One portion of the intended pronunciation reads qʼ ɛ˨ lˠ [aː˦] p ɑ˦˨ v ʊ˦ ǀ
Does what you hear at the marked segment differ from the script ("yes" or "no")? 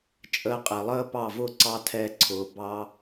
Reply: yes